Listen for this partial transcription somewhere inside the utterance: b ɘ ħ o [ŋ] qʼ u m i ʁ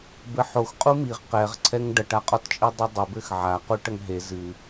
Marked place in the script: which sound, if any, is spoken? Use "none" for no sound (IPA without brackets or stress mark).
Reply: x